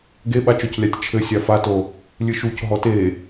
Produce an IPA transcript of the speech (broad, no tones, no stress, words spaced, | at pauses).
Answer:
ɡeɓat͡ʃɔclʲatʲ t͡ʃʰɘ sʲafato | lʲɨʃuc ɦɔte